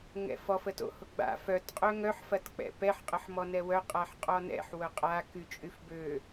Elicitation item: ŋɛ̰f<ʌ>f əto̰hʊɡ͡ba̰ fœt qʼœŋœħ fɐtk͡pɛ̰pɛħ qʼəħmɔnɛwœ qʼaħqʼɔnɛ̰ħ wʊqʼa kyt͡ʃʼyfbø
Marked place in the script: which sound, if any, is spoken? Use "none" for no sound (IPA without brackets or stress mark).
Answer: ɔ